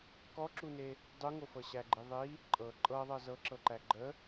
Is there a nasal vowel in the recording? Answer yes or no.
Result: no